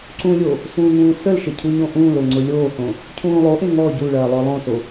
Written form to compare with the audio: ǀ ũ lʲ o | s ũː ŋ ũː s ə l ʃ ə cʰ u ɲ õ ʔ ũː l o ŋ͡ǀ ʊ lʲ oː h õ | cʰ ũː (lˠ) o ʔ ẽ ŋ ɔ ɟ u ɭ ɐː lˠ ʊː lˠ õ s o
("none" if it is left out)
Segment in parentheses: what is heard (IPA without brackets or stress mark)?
lˠ